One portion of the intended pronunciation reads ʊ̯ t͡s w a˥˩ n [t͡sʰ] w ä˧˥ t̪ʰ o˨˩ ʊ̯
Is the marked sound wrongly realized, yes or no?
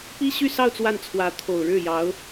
no